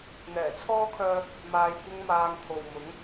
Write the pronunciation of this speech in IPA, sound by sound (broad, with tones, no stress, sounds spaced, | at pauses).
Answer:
n̪ ɛː˨˩ t͡sʰ ɔː˥ kʰ œː˧ | m aː˧ j kʷ ɪ˥ ŋ m aː˧ ŋ t̪ʰ o˨ w m ʊ˨˥ ŋ